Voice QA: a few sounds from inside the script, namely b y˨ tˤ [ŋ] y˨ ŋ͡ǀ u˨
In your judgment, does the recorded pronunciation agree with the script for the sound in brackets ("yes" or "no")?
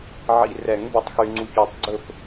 no